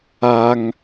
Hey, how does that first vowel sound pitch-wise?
high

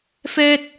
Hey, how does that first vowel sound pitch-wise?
high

